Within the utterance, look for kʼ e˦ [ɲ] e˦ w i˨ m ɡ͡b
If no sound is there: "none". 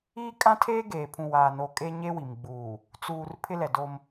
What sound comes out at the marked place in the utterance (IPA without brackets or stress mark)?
ɲ